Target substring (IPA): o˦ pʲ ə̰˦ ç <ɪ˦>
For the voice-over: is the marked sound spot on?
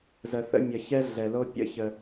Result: no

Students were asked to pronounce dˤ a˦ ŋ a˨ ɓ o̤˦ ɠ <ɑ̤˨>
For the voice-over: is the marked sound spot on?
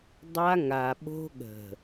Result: no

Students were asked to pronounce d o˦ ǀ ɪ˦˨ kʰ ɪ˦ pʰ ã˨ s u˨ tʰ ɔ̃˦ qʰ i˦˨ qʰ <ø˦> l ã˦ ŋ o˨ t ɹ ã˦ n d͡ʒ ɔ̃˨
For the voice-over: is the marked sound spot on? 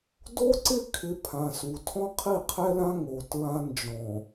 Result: no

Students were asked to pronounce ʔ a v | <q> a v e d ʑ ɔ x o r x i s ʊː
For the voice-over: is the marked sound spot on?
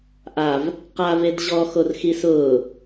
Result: yes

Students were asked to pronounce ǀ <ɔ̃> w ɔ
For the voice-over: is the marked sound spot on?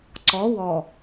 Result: no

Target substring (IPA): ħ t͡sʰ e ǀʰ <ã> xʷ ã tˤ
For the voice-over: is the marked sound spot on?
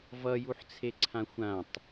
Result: yes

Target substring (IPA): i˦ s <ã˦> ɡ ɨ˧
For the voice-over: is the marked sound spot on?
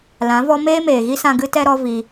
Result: no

